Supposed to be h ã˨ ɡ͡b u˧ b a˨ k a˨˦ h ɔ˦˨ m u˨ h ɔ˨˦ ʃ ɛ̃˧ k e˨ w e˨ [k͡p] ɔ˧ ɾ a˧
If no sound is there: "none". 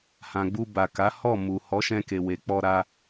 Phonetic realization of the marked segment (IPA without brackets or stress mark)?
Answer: k͡p